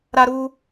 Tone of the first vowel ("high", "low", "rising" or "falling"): high